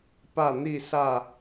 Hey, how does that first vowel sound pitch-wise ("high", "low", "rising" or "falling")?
falling